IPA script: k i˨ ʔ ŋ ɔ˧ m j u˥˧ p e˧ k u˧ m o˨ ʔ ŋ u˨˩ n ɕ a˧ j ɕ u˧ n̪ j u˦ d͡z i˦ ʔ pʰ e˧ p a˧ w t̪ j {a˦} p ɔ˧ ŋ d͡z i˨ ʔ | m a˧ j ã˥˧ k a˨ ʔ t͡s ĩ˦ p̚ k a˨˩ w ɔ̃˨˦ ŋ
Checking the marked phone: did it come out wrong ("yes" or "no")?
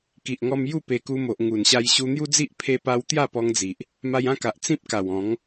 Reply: yes